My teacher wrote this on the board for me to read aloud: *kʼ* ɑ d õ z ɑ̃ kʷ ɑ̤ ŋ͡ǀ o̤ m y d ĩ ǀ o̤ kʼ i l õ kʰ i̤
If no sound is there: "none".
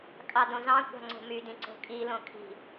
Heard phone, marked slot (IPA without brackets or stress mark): kʼ